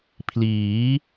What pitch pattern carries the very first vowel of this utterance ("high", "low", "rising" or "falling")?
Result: rising